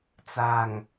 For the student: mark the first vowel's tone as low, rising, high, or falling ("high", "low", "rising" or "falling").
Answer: low